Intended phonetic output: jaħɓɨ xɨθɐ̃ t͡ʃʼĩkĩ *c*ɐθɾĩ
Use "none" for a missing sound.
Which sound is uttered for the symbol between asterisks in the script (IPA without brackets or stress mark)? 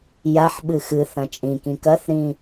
k